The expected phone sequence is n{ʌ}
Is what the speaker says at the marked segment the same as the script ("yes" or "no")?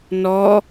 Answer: no